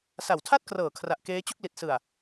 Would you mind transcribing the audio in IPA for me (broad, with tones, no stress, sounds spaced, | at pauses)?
s a˨˩ w tʰ a˥˩ t̚ k r ɤː˨˩ kʰ r a˨˩ ʔ k eː˦˥ t͡ɕ u˥˩ k̚ l i˨˩ t̚ s ɯ˨˩ a̯